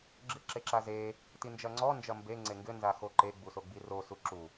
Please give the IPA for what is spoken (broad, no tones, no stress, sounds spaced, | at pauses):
ɡ͡ǁ ɨ ǁ e ǁ a z e | t i n d͡ʒ ɐ ŋ͡ǀ ɔ n d͡ʒ ɐ m b e ŋ͡ǀ e ŋ ɡ ɘ n z a x o ǃ e ɡ͡b u s o ɡ͡b i r o s u ǁ u